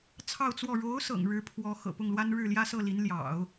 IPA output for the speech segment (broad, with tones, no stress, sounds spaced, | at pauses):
t͡sʰ ɑ˥˧ ʊ̯ t͡s w ɔ˥˩ ɻ o˧˥ ʊ̯ s ɤ̰˨˩ ŋ ɻ ɻ̩˧˥ pʰ w ɔ˧˥ x ɤ̰˨˩ p ʊ˥˩ ŋ l w a˥ n ɻ ɻ̩˥˩ l j ä˥ s ɤ˥˩ l i˧˥ n l j ɑ̰˨˩˦ ʊ̯